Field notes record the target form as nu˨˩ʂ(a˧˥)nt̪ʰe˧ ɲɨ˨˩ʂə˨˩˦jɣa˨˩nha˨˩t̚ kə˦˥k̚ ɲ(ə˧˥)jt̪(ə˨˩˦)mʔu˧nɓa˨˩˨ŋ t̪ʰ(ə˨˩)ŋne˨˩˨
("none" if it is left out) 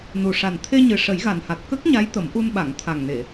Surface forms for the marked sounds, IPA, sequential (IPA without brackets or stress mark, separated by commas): a˨˩, a˧˥, ə˨˩˦, a˨˩